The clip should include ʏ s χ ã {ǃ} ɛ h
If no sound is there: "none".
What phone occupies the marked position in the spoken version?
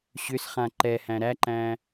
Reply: ǃ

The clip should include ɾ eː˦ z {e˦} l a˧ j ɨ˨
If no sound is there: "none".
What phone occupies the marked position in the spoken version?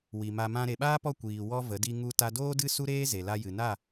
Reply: e˨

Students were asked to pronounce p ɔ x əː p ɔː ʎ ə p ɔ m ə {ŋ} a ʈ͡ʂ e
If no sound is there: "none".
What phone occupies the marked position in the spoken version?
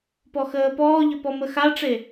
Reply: x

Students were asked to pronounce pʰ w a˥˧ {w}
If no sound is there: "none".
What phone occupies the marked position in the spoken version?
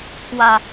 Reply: none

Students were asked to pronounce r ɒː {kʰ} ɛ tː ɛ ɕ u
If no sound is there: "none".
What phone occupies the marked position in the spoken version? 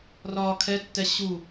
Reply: kʰ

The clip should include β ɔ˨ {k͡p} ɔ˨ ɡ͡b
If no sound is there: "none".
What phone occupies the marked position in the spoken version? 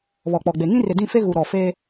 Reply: k͡p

